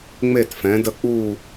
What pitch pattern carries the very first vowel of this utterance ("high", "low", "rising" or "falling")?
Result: falling